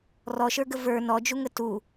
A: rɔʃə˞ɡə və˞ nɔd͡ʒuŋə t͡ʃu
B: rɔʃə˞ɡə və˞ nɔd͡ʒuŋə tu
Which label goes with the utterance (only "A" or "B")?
B